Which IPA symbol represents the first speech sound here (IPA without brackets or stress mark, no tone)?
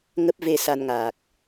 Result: ŋ